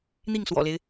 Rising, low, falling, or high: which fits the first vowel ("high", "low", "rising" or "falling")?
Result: falling